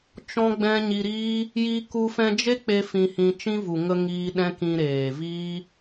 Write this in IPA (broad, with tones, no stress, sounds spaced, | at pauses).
t͡ʃ ɔ̃˦ ɡ͡b ɛ̃˦ ɲ i˧ ɾ iː˦ | j i˧ k u˧ f ɛ̃˧ d͡ʒ e˦ k͡p e˦ f ĩ˧ h ĩ˧ t͡ʃ ĩ˦ v u˨ ŋ ə˧ ŋ iː˧ ɗ ɛ̃˦ k ĩ˧ ɾ eː˨ v iː˦